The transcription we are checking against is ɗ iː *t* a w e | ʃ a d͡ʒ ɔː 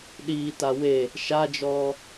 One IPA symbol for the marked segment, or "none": t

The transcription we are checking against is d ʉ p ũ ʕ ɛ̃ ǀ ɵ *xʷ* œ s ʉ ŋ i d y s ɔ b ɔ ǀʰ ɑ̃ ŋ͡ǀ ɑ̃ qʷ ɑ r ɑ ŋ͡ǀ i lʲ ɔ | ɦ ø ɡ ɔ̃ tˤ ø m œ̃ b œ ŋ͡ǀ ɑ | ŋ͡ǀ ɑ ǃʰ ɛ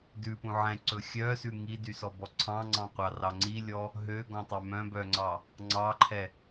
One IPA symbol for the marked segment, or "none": xʲ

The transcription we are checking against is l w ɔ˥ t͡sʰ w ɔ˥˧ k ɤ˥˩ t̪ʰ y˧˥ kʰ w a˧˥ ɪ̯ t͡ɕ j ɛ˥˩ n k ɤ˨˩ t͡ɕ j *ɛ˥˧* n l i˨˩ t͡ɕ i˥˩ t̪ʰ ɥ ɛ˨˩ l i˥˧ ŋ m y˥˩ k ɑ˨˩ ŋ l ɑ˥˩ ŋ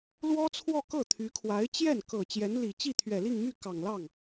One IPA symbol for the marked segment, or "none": ɛ˧˥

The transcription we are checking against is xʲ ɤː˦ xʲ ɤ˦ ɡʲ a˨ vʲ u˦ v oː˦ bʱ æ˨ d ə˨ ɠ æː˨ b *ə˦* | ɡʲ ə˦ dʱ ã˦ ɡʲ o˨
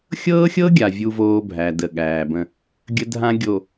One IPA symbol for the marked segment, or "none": ə̃˦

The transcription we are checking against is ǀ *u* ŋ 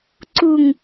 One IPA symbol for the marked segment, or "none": u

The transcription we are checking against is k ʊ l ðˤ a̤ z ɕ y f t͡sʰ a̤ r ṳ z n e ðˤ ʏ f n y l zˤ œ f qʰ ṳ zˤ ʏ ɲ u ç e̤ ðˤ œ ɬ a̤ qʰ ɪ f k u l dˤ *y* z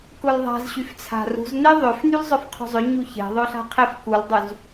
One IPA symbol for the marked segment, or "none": y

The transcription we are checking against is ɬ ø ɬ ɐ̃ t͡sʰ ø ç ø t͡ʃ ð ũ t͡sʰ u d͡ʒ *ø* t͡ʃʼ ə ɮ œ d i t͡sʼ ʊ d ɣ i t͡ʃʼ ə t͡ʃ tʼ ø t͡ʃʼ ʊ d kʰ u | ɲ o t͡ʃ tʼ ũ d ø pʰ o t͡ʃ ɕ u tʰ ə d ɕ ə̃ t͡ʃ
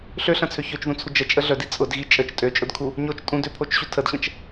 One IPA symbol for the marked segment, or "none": ə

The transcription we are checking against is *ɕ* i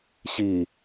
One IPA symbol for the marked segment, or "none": ɕ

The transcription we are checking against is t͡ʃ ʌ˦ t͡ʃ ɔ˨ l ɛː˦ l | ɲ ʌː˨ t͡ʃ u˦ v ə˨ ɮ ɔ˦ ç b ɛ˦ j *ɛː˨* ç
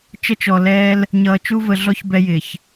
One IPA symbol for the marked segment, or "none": ɪː˨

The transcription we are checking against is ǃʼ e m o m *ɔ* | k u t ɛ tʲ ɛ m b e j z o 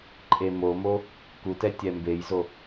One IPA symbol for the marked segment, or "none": o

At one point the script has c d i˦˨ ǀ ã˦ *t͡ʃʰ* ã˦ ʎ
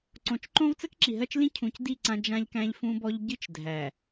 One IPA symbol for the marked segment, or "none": d͡ʒ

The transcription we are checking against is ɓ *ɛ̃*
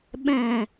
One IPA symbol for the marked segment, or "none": ɛ̃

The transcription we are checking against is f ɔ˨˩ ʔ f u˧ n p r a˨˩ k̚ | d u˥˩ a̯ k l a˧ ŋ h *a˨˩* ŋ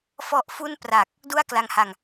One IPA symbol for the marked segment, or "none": a˨˩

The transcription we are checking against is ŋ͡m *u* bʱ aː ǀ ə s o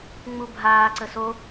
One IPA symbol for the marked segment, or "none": u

